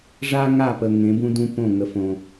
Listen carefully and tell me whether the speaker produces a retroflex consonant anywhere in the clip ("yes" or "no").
yes